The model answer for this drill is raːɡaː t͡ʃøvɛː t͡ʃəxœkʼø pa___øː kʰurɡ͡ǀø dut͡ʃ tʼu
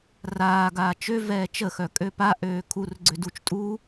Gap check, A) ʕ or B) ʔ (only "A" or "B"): B